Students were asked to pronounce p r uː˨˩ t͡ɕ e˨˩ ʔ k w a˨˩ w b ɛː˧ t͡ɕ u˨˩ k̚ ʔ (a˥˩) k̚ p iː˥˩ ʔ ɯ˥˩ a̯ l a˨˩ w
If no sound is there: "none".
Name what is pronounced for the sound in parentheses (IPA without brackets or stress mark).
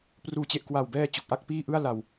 a˥˩